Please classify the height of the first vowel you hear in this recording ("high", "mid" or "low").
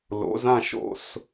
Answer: mid